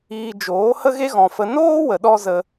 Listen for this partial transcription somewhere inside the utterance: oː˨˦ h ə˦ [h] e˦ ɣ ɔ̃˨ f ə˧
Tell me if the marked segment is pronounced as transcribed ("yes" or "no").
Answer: no